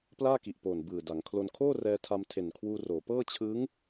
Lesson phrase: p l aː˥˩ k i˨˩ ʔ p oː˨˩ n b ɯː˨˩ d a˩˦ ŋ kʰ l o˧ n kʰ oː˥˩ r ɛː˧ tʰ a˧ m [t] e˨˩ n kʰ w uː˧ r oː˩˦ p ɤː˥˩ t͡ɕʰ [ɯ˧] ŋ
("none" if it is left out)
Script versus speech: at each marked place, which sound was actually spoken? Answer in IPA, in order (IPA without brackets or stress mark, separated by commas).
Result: tʰ, ɯ˦˥